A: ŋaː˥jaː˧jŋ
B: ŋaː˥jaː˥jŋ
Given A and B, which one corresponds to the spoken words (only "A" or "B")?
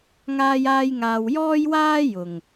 B